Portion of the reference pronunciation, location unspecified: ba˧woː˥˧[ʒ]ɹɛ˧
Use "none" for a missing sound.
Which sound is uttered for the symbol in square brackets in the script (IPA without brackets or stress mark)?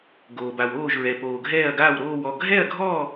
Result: ʒ